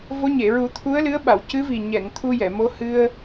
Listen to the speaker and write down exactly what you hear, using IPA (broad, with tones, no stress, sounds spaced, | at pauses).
v o˧˥ ɲ e˨˩˨ ɹ u˨˩˦ t̪ʰ u˧˥ ə̯ l ɨ˧˥ ə̯ ɓ a˨˩˨ w c ɨ˧˥ v i˨˩ ɲ ɛ˨˩˨ ŋ t̪ʰ u˧ j ɛ˨˩˨ m o˧˥ h ɨ˧ ə̯